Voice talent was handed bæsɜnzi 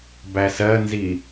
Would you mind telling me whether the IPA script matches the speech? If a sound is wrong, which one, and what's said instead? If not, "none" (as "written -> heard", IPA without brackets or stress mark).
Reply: none